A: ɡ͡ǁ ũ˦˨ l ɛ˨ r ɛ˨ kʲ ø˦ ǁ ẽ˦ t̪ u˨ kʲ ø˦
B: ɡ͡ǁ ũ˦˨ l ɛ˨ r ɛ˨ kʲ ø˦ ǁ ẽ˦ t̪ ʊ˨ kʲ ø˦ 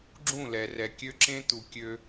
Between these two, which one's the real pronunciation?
A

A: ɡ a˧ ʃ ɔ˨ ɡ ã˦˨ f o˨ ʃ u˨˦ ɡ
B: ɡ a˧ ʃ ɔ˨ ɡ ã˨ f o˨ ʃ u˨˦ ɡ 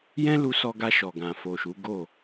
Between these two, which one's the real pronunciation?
B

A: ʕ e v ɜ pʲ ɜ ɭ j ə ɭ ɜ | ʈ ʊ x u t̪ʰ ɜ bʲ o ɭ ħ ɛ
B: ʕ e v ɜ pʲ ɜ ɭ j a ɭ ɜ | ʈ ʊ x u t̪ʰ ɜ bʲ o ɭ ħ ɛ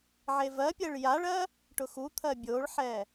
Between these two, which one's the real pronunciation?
B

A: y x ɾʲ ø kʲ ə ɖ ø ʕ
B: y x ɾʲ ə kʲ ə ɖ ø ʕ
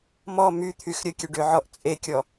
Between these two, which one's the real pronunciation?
B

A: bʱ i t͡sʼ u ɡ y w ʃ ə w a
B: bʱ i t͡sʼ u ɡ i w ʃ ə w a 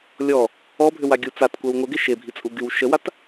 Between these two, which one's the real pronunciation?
A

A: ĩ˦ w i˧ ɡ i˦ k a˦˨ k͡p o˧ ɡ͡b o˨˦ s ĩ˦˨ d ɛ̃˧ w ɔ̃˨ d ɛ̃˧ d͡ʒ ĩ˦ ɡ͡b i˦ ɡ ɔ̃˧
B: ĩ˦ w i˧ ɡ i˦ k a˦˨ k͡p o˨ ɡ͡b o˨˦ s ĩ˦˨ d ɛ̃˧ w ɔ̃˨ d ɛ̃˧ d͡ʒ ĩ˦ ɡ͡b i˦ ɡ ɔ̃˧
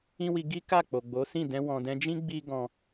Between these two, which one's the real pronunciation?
B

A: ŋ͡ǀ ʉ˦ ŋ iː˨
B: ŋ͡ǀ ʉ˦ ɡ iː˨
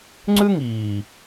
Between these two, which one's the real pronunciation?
A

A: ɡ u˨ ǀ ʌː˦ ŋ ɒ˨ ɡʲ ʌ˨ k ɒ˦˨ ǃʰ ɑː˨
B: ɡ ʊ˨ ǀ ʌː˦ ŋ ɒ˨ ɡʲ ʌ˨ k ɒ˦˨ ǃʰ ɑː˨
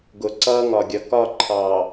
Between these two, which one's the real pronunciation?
B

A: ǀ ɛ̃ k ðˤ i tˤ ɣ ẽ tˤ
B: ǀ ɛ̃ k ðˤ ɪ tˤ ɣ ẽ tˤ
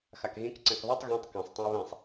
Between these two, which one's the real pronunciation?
A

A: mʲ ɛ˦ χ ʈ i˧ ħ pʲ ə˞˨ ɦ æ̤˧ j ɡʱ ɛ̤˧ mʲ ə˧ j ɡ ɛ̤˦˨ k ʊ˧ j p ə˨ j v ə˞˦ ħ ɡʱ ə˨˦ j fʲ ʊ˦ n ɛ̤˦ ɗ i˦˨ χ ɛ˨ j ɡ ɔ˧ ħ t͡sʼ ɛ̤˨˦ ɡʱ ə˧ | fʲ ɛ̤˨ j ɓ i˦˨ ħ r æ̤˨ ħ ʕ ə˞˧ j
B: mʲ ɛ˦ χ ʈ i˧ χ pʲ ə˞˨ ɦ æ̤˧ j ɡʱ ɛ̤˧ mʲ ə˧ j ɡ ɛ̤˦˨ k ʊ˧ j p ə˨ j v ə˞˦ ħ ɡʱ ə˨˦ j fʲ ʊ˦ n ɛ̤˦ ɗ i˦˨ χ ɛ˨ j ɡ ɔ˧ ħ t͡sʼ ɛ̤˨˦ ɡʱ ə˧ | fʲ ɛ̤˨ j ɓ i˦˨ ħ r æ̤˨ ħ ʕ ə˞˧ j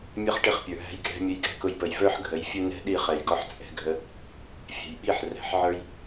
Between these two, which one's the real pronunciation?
B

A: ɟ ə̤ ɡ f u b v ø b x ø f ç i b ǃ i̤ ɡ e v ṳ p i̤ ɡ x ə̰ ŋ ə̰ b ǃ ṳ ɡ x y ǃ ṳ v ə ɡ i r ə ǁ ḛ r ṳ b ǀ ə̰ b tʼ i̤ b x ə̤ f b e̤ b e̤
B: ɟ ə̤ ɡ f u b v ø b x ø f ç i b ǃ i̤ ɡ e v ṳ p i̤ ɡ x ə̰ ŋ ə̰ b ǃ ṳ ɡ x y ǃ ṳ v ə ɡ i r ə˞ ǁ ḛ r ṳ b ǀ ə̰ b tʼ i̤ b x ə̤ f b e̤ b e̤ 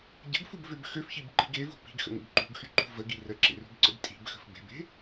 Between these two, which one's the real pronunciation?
A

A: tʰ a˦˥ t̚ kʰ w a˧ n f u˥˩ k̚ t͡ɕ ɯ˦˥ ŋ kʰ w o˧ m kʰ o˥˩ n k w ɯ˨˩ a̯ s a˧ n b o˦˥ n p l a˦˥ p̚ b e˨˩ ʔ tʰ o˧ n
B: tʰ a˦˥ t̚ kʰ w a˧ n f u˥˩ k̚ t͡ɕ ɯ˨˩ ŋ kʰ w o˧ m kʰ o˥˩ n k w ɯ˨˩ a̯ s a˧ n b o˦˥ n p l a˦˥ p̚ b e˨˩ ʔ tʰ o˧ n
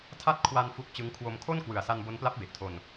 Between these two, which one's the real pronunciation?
A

